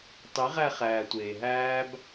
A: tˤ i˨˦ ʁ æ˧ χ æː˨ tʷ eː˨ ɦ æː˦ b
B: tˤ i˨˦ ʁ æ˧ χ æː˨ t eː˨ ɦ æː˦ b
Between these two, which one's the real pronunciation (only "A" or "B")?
A